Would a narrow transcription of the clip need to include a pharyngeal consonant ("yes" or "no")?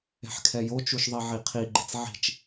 yes